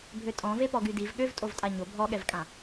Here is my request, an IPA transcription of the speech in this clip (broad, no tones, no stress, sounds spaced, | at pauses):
bʱ ø tʼ ɔ̃ v e p ɔ ɡ y d i v ɠ ø v tʼ o v tʼ a ɲ o bʱ ɔ ɠ ɛ v kʼ ã